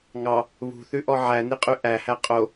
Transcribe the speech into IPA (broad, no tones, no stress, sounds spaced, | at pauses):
ŋ ɑ | β ṳ θ ʉ ʔ ɔ ʕ æ n i qʼ y ʔ æ h æ qʼ o